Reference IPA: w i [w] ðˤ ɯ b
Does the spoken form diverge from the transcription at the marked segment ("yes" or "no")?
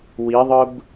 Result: yes